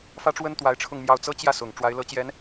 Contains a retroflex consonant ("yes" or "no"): yes